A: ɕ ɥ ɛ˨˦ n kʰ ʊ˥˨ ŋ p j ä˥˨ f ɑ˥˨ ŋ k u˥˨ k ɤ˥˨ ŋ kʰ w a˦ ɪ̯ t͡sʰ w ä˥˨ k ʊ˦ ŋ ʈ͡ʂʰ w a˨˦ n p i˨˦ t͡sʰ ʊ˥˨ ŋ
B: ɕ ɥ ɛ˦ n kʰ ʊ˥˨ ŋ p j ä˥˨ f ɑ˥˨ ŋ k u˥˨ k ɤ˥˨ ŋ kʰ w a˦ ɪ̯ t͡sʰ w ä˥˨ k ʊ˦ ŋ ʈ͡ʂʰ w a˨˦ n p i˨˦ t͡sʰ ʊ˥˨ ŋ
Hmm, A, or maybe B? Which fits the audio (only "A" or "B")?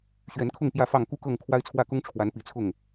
A